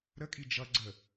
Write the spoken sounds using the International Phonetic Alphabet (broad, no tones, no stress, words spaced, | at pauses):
ɾəkʼi d͡ʒʌ ɡ͡ǀə